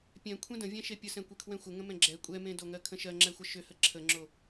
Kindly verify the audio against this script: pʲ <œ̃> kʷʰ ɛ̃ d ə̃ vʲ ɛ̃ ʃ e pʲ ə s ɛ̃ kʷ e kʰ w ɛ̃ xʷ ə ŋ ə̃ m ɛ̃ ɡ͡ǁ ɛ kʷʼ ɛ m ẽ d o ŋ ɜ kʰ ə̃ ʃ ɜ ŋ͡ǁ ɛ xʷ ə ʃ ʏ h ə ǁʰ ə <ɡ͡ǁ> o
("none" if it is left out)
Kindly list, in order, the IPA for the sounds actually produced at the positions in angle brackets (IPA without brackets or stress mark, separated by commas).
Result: ɛ̃, ŋ͡ǁ